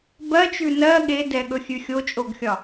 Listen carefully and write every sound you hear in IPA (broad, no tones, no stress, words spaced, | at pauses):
bɜt͡ʃʉ nɜ ɠedɛɠɵxʲʉ xʲot͡ʃʼoɡxʲɒ